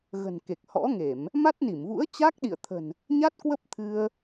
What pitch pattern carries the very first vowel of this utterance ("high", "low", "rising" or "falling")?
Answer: low